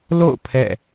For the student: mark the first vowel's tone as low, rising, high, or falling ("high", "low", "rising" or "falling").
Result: falling